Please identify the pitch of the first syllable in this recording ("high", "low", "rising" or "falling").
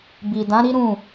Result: low